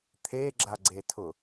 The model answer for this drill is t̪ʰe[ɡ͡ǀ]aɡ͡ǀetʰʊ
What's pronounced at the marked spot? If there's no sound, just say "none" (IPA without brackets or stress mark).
ɡ͡ǁ